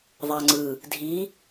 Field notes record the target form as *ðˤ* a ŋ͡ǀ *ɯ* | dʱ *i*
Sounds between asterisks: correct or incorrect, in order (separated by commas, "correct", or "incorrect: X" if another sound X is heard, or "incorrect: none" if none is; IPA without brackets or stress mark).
correct, correct, correct